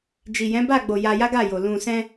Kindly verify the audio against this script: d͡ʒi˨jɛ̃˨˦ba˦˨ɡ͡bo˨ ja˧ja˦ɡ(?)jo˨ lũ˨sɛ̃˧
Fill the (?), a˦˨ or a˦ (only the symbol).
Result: a˦˨